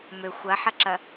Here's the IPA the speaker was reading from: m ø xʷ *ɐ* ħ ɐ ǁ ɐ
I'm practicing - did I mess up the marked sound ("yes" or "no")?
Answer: no